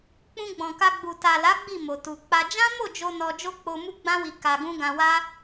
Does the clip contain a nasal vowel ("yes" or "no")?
yes